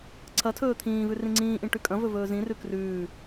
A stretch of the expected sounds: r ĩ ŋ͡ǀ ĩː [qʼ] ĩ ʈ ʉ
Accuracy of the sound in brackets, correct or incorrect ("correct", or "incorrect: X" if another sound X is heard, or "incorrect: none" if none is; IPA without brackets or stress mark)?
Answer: incorrect: ʔ